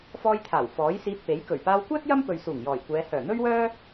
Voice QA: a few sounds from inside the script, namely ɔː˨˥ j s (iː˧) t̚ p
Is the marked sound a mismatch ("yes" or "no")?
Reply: no